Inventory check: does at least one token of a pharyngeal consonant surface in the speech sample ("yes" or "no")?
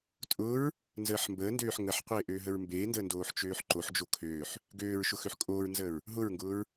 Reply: yes